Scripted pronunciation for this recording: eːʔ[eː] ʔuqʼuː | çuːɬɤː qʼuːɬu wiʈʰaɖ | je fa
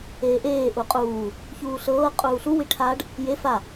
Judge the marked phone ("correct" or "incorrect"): correct